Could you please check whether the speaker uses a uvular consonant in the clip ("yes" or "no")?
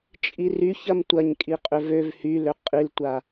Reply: yes